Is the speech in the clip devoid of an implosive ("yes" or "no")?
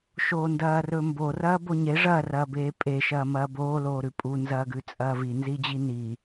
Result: yes